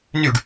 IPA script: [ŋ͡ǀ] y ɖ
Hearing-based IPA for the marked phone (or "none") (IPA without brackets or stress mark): n